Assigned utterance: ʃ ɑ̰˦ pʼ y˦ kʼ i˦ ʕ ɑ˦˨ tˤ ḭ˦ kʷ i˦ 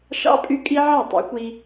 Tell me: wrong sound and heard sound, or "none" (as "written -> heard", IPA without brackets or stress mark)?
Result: none